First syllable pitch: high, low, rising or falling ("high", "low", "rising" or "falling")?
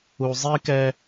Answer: low